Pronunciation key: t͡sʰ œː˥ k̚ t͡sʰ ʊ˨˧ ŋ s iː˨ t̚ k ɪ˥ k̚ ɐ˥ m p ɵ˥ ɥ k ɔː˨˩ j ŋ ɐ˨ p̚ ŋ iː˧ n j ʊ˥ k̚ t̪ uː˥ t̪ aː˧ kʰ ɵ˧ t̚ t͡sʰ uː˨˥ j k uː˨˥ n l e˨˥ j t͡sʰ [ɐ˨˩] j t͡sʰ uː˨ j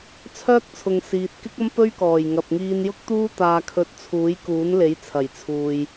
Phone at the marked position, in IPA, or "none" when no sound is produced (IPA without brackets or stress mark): ɐ˨˩